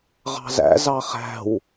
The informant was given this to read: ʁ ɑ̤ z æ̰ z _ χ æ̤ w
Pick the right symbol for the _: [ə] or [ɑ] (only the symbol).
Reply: ɑ